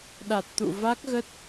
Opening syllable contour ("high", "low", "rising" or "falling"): low